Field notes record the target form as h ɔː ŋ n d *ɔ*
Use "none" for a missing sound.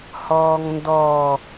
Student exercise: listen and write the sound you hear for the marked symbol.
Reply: ɔ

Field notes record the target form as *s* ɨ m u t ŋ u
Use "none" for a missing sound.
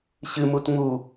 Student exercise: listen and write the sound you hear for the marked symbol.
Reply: ɕ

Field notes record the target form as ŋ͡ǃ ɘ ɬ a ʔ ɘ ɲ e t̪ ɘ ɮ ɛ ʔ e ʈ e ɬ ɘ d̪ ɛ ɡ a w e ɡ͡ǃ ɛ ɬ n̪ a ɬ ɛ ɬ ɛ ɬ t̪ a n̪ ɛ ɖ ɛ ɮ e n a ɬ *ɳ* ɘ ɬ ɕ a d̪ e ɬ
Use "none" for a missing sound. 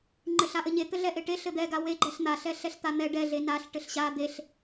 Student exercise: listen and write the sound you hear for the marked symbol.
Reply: ʈ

